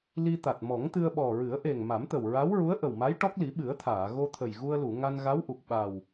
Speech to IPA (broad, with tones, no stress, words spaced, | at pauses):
li˧t̪a˨˩t̚mɔ˨˩˦ŋt̪ɨ˧ə̯ ɓɔ˨˩ ɹɨ˨˩˦ə̯ʔe˨˩ŋ ma˨˩˦mt̪ə˨˩wɹa˧˥w ɹu˧˥ə̯ʔə˨˩wma˧˥j ʈɔ˦˥k̚li˨˩˦ ɓɨ˨˩˦ə̯t̪ʰaː˨˩˨ ɣo˧t̪ʰə˨˩j ɣu˧ə̯lu˨˩˨ ŋa˧nɣa˧˥w ʔu˨˩k̚ ɓa˨˩w